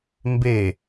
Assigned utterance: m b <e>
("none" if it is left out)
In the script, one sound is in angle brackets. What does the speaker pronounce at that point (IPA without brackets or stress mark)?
e